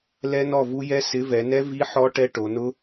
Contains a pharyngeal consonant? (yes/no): yes